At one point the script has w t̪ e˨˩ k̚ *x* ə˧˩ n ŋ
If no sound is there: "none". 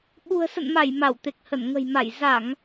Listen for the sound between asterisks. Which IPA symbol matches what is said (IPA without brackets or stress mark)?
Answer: h